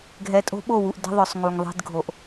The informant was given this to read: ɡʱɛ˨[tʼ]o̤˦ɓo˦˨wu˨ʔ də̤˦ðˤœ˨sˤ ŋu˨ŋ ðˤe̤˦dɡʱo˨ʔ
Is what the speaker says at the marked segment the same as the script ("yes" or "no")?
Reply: yes